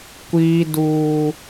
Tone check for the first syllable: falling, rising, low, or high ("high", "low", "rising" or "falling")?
high